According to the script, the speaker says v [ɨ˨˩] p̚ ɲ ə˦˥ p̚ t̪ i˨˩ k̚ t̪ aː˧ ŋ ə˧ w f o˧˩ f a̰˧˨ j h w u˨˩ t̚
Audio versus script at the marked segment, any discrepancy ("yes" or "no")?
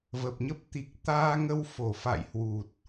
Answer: yes